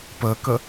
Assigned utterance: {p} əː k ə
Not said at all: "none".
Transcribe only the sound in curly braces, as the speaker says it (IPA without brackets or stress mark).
p